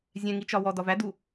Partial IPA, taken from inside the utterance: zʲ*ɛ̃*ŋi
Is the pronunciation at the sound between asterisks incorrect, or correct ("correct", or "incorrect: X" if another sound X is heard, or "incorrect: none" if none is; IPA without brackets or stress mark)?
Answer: correct